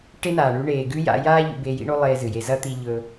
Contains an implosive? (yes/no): no